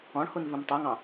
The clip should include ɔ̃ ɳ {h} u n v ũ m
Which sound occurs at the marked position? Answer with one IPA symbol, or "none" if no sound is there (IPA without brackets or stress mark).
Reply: h